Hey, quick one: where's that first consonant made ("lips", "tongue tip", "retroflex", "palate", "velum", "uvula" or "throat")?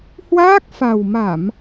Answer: throat